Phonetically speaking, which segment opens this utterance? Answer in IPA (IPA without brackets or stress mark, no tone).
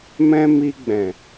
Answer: m